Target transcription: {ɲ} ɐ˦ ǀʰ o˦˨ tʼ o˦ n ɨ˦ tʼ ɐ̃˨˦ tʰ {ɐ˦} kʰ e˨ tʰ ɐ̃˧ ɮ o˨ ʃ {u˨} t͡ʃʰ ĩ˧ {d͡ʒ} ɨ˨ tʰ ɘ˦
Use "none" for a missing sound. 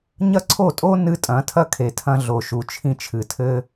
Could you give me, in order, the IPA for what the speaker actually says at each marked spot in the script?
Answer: ɲ, ɐ˦, u˨, t͡ʃʰ

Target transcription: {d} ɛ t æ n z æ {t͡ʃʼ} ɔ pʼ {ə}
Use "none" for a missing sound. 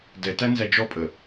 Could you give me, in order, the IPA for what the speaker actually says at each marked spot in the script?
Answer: d, d͡ʒ, ə

